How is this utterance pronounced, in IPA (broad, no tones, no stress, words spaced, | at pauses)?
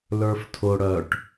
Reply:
lə˞ftʰʊ ɽœʈ